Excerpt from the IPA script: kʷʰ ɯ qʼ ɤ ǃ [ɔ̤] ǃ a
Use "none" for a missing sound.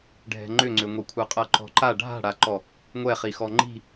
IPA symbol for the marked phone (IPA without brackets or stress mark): ɔ̤